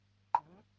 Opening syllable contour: rising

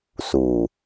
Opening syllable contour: low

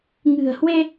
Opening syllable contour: low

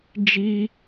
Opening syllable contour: high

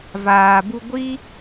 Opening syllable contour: low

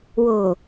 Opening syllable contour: low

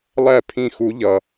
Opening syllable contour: falling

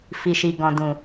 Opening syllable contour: low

